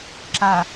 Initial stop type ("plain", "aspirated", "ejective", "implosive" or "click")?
click